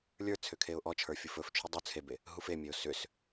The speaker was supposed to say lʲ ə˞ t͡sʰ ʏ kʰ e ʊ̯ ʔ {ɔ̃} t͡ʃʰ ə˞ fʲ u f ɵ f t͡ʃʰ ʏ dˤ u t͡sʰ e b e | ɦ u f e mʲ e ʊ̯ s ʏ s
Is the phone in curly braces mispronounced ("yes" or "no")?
yes